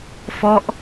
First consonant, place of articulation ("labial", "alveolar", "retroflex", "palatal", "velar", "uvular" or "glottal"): labial